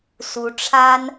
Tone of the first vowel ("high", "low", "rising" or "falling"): rising